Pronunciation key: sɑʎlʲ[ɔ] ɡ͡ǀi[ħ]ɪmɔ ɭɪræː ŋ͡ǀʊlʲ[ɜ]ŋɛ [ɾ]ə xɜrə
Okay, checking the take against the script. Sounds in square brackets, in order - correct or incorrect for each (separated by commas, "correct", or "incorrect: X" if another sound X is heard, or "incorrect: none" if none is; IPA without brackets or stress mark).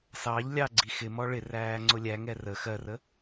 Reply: incorrect: ɑ, incorrect: x, incorrect: æ, incorrect: r